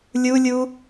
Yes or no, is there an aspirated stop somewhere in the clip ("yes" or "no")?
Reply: no